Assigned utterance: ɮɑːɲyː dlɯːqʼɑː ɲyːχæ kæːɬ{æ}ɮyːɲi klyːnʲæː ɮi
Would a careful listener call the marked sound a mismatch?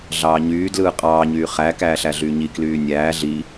no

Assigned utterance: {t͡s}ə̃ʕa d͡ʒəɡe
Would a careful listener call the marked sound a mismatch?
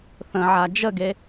yes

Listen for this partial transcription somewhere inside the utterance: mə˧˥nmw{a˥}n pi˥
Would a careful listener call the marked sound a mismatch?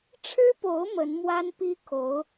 no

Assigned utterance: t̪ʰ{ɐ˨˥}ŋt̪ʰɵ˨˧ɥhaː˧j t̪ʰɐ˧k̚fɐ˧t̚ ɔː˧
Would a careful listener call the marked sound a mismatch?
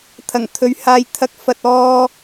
yes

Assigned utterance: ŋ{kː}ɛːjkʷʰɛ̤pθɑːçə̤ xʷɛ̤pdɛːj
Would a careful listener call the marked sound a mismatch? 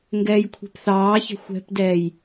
yes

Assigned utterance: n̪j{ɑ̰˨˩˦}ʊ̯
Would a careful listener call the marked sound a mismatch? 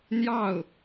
yes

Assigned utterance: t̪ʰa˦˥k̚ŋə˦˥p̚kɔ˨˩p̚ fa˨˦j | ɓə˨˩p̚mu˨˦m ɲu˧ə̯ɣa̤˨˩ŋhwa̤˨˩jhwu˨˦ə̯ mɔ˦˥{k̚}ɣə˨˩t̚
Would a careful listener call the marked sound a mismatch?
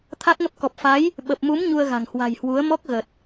no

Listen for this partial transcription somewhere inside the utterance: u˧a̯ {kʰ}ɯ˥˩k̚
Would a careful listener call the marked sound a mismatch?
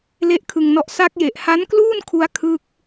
no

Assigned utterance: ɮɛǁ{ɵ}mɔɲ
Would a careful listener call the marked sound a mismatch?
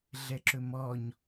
no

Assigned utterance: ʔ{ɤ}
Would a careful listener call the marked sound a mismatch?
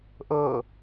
no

